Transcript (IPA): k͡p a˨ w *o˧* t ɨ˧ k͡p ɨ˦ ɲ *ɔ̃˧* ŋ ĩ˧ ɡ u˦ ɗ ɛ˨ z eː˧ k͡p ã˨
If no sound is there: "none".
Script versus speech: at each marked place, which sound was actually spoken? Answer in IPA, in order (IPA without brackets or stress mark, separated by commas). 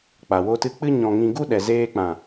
o˧, ɔ̃˧